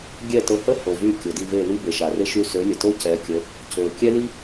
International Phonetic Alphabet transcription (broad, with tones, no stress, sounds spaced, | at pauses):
ɡʲ ɛ˥˩ t ə˧ h ə˥ h o˩ v y˥˩ kʲ o˩ d i˥˩ v e˥˩ l i˥ b e˩ ʃ a˩ r e˥ ʃ y˧ s ø˩˥ lʲ ə˩ t o˥ c ɛ˩˥ kʲ ə˩˥ | c ø˩ kʲ ɛ˥ l i˥